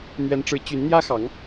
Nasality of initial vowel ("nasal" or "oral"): oral